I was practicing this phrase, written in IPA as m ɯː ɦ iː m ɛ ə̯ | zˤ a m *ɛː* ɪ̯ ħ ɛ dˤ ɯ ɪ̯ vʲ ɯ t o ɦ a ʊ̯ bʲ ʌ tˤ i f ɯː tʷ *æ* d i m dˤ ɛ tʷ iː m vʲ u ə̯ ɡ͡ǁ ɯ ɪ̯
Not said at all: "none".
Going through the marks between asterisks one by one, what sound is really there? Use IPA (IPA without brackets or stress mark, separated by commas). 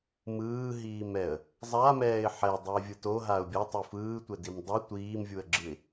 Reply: ɛː, ɛ